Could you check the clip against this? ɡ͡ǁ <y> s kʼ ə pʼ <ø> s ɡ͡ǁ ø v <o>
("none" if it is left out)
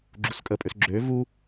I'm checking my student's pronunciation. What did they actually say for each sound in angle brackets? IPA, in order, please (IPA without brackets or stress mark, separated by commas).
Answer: u, ø, u